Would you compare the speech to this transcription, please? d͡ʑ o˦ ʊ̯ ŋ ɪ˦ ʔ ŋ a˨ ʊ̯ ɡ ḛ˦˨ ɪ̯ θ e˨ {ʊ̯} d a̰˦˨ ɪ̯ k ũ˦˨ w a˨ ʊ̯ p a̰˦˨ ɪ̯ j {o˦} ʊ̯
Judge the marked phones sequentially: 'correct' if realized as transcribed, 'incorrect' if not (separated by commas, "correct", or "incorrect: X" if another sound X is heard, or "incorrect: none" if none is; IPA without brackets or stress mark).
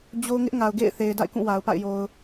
incorrect: ɪ̯, incorrect: o˨